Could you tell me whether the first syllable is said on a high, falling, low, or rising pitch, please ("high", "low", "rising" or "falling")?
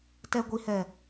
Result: low